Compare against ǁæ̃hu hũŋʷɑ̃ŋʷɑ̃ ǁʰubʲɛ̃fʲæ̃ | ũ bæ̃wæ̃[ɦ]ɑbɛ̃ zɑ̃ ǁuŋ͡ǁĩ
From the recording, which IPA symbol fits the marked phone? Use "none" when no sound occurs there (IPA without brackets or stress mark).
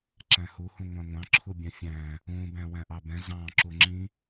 ʔ